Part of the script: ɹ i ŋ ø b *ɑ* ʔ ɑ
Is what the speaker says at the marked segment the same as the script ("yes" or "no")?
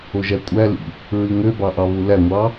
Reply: yes